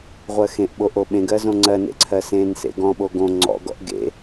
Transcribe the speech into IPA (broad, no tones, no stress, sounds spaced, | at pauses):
ʁʷ ɜ x ẽ ʔ ɓ o ʔ o ɓ ẽ ɡ ɜ z õ ŋ͡ǀ ɜ n ḛ ǀʰ ɜ s ẽ n s ḛ ɡ ɔ̃ ɓ o ɡ õ ŋ͡ǀ ɔ̰ ɡ ɔ̰ ʔ ɡ ḛ